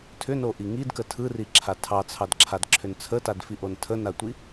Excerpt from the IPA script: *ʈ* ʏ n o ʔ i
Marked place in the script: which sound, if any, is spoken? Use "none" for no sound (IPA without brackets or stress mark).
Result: tʰ